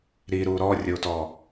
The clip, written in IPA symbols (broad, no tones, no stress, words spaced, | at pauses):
ɾiɾu ɾɔrʲotɔ